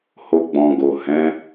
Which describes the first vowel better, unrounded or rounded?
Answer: rounded